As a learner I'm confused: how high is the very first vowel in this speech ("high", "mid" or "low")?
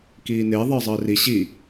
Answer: high